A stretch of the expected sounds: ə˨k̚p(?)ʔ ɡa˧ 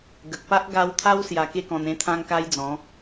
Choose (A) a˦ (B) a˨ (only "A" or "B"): A